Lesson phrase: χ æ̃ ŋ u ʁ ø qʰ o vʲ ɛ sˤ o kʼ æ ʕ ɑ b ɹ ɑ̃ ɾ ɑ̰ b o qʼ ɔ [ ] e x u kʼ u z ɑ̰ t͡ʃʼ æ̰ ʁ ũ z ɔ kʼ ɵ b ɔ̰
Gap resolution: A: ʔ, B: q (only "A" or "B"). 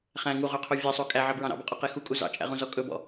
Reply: B